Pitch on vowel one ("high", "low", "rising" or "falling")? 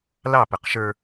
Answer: falling